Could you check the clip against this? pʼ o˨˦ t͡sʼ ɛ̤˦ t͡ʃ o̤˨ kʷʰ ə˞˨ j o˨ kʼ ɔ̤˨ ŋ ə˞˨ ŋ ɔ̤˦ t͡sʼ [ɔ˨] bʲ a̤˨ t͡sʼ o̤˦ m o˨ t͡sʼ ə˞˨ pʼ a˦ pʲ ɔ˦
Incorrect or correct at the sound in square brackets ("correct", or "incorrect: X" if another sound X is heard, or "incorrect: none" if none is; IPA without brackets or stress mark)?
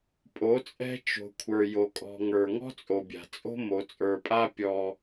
incorrect: o˨